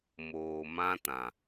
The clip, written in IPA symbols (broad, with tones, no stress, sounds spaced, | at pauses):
m oː˨ m ã˦ t ã˨